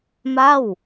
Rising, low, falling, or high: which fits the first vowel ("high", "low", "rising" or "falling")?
falling